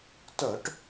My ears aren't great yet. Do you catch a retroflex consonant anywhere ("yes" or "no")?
yes